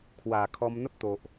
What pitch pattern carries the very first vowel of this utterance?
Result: low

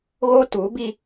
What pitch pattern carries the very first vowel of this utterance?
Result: high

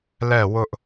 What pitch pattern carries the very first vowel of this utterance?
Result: falling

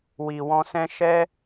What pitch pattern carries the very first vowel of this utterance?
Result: low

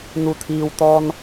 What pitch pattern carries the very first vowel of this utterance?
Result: low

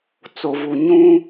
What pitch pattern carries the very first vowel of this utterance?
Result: low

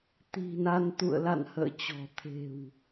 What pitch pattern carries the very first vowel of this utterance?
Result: low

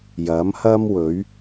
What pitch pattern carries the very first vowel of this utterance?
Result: rising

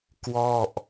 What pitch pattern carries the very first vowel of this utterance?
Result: falling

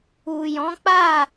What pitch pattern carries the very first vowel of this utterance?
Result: low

